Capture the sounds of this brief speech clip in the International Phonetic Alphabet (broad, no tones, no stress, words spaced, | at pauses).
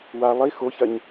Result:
wa lˠi xoçɐɲ